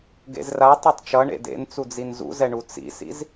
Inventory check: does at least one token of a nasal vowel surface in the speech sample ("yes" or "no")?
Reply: no